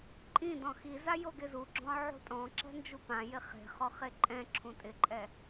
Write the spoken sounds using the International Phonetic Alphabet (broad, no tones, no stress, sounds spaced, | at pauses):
ǃʼ ĩ d ɔ̃ x i z a j o ɡ ɪ z u ɡ͡ǁ ɔ̃ ʕ ṳ tʼ ɔ̃ ǁ ɛ̤ n d͡ʒ u p ã j ɪ χ e̤ χ ɔ χ e ǃʼ ɛ̃ ǁʰ ũ tʼ ɪ ǃʼ ɛ